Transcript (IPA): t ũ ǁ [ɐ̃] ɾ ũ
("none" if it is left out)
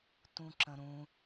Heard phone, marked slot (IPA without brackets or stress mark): ə̃